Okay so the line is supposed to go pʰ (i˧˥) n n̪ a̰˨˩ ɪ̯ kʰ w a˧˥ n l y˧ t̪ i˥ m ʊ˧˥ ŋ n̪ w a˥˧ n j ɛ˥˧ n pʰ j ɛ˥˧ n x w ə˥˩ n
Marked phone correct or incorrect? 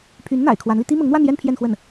incorrect